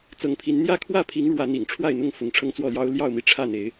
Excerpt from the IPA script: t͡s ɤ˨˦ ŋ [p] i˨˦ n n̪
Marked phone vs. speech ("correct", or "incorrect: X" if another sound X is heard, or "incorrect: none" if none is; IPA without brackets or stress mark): incorrect: pʰ